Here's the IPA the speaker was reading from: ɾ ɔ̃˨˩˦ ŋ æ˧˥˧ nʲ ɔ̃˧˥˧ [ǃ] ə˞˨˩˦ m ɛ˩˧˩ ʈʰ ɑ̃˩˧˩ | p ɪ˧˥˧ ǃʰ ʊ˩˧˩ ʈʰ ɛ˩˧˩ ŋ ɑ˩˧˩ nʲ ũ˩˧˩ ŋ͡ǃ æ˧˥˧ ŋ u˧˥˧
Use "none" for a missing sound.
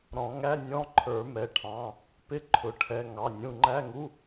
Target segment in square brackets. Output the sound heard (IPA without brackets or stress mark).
ǃʰ